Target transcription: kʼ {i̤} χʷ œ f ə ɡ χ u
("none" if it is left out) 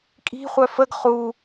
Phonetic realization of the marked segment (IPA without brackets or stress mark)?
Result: i̤